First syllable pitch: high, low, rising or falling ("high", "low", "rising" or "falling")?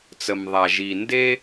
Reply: low